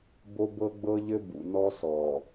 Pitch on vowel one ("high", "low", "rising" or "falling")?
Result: high